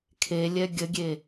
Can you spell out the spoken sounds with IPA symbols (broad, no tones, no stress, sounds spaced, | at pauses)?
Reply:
kʰ e lʲ ɛ ɡʲ ə ɡʲ e